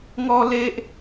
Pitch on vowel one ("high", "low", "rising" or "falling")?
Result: high